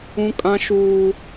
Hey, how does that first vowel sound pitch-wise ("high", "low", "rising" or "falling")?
high